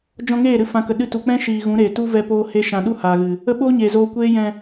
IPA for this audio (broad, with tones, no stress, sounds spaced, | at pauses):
d͡ʒ ɔ̃˧ ŋ eː˦˨ ɾ ɨ˧ f ã˨ k ə˨ ɗ ɨ˧ t u˨ k͡p ɛ̃˦ ʃ iː˨ ɣ ũ˨˦ ɾ eː˨ t u˦ v ɛ˦ p oː˦ h e˦ ʃ ã˧ ɗ u˦ h aː˨ ɣ ɨ˨ | ə˦ ɓ oː˦ ɲ eː˨ z oː˧ kʷ eː˦ j ɛ̃˧